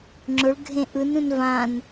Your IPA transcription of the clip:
ŋ͡ǁ ʊ ɭ ɡʱ ẽ ʔ ɯ n ũ n v ã n

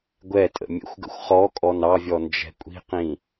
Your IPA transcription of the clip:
ɡʷ ɛ tʼ ə̰ mʲ ə̰ xʷ ɡ ə̰ xʷ χ ɔ kʼ ɔ n ɑ vʲ ɔ n d͡ʒ ɛ̤ kʷʼ i̤ q ĩ

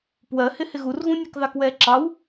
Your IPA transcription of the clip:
p w ɜ h ɪ h ɪ ɣ u r ɣ ũ nʲ ɑ k ð ɑ k w ɛː ǁ ɑ w

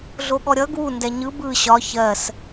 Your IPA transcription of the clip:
ɮ o ɠ ɔ ɾʲ ʌ ɡ w u n d ɛ ɲ ɯ b ɯ ɕ ɒ ç ɜ s

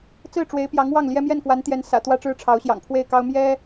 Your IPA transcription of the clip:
t͡s ɹ̩˥˩ ʈ͡ʂ w e˧˥ ɪ̯ p j ɑ˧˥ ŋ w ɑ˥˩ ŋ l j ɛ˥ m j ɛ˥˩ n k w a˧˥ n t̪ j ɛ˧˥ n s ä̰˨˩ t̪ w ä˥ ʈ͡ʂ ɻ̩˥ ʈ͡ʂʰ ɑ˧˥ ʊ̯ ɕ j ɑ̰˨˩ ŋ pʰ w e˥˩ ɪ̯ k ɑ˥ ʊ̯ m j ɛ˥

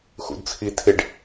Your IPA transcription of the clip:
x ṵ d t͡sʰ i tʰ ɪ ɖ

